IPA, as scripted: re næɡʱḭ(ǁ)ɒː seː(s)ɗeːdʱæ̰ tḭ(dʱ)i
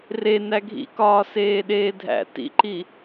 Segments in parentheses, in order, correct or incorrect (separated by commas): incorrect, incorrect, incorrect